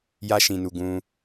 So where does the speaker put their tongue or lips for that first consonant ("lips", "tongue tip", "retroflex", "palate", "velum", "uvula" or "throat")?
palate